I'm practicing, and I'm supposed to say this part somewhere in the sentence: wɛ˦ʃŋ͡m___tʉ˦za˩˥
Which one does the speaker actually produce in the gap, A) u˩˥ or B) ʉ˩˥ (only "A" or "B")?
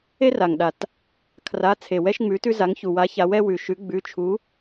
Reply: B